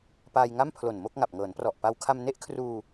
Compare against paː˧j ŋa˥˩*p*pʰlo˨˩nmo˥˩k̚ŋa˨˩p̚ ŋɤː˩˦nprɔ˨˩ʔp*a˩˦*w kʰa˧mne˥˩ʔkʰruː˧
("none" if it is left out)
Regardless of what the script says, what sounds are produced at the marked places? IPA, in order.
m, a˧

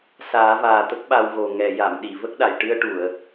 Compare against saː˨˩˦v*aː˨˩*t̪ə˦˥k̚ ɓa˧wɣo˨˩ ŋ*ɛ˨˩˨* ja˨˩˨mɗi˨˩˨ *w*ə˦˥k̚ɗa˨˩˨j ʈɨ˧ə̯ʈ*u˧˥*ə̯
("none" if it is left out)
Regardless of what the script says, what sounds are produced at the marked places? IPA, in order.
aː˨˩, ɛ˨˩˨, v, u˨˩˨

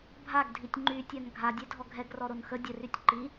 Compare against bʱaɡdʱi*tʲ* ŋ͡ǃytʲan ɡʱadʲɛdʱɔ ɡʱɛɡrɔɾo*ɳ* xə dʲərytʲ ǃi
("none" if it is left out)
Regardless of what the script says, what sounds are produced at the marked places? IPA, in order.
tʲ, n

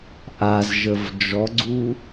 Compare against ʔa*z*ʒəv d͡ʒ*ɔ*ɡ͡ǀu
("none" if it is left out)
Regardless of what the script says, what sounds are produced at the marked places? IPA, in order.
z, ɔ

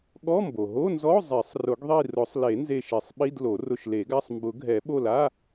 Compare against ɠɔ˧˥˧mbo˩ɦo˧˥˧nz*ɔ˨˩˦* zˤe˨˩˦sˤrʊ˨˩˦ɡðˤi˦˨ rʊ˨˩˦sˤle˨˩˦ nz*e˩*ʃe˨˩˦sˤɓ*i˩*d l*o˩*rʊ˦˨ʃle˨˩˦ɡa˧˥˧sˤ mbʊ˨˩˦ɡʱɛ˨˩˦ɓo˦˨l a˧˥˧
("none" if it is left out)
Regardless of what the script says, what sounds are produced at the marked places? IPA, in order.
ɔ˧˥˧, e˦˨, i˧˥˧, o˨˩˦

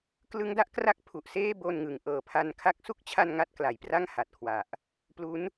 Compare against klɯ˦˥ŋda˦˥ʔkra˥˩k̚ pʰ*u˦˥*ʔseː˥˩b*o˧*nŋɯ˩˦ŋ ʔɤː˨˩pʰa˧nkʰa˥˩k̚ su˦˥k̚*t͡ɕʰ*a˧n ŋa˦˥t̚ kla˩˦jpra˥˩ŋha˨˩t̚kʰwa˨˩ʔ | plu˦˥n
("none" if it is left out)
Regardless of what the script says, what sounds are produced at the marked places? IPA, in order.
u˨˩, o˧, t͡ɕʰ

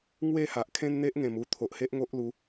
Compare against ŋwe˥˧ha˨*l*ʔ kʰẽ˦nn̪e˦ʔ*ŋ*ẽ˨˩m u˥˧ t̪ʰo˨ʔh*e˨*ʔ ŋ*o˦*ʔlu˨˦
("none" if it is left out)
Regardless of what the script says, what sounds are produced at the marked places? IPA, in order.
none, ŋ, e˦, o˦

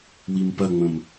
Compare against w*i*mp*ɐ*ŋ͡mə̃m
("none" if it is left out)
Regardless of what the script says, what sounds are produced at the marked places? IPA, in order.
i, ɐ

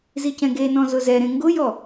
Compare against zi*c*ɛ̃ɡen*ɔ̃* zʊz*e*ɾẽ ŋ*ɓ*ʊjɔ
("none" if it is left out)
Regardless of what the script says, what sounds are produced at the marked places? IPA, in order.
c, ɔ̃, ɛ, ɡ

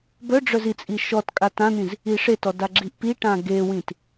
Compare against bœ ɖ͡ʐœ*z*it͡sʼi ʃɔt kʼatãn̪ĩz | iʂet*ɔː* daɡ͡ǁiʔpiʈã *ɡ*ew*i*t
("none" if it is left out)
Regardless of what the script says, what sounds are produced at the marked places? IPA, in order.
z, ɔ, ɡ, ĩ

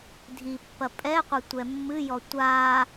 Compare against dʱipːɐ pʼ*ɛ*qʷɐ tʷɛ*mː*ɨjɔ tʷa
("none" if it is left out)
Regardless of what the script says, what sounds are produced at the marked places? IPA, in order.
ɛ, mː

